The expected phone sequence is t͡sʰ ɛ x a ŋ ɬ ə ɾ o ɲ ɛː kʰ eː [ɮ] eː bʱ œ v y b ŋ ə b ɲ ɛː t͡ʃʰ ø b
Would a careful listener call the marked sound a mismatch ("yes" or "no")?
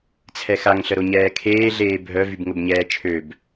no